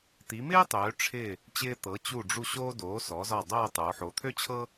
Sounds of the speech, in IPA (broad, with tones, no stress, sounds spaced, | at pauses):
t̪ i˩˧ m ɪː˥ tˤ øː˩˧ ʈ͡ʂʰ ɪ˧˩ | t͡ɕ ɪː˧ t̪ ɤ˩˧ t͡ɕ u˧˩ ɖ͡ʐ u˧˩ ɕ oː˧ d oː˩˧ s ɔ˩˧ z ɒ˧˩ dˤ oː˥˧ tˤ oː˩˧ ħ o˩˧ t̪ʰ ø˥ t͡ɕʰ ɤ˥